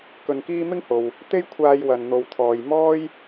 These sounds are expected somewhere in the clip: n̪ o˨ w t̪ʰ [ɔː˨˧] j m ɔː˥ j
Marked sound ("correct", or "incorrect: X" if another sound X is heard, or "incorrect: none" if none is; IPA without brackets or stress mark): incorrect: ɔː˨